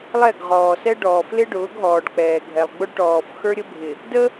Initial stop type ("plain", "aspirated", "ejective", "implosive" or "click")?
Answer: plain